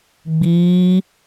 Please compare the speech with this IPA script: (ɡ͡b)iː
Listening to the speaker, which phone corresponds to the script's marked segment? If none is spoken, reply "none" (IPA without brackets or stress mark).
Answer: ɡ͡b